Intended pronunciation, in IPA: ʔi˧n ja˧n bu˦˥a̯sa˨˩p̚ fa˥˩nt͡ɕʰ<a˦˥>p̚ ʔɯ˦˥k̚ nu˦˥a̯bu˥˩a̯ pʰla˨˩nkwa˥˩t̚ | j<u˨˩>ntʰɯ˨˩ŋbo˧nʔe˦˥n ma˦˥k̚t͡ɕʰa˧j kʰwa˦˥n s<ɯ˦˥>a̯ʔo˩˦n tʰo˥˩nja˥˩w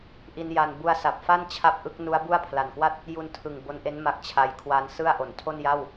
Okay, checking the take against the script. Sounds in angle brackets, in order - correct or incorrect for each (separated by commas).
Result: correct, incorrect, incorrect